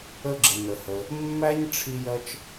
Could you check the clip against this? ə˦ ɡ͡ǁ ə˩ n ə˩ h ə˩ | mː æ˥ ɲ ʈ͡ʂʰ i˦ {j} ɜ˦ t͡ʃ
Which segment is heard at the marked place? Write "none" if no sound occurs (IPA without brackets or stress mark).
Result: j